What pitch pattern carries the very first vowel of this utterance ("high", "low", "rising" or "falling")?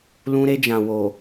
high